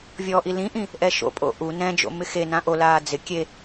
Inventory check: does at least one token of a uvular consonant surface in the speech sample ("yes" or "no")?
no